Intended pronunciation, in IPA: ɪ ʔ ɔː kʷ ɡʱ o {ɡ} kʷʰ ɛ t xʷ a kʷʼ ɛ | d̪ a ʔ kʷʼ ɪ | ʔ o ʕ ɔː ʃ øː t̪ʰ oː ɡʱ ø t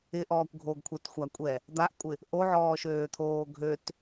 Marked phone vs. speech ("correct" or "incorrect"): correct